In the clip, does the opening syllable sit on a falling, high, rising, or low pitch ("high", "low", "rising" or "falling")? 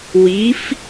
rising